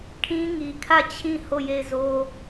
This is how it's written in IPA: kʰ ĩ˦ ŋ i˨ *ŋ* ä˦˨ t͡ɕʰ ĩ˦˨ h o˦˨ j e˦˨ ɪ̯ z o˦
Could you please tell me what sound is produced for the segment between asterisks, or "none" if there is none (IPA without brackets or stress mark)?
kʰ